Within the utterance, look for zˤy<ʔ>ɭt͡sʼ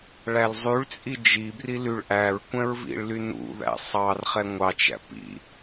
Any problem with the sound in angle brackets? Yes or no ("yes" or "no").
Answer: yes